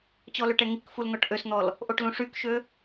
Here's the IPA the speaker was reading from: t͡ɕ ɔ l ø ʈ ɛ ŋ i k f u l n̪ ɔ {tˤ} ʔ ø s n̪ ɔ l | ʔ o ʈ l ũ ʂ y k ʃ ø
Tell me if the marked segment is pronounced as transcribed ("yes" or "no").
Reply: no